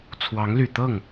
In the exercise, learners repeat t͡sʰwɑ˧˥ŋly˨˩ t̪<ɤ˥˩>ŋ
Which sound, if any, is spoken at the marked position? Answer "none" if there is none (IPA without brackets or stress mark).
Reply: ɤ˥˩